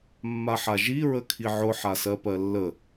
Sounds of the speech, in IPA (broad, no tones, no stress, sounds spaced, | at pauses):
mː a ħ a ʒ i ɹ ə kʰ i ʕ ʊ ħ a s ɜ p ɜ lː ə